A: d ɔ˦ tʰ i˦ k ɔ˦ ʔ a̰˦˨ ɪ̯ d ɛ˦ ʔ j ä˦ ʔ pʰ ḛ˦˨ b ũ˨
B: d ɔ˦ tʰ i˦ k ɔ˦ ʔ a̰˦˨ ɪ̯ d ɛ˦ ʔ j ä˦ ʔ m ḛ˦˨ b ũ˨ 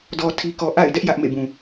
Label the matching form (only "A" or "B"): B